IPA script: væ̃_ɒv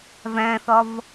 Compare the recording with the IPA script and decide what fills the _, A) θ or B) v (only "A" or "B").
A